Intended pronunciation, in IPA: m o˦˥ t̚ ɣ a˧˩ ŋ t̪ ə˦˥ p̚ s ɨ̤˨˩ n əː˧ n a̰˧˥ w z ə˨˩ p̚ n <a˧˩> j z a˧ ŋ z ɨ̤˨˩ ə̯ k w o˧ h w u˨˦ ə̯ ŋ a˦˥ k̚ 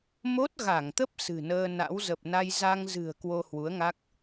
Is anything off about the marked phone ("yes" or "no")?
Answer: yes